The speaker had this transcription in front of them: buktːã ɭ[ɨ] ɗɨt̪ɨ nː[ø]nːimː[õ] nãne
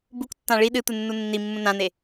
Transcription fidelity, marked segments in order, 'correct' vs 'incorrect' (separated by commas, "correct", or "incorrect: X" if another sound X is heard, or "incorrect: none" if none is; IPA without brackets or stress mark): incorrect: i, incorrect: u, incorrect: ũ